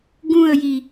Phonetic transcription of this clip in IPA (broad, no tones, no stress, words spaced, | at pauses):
ɡũə̯ji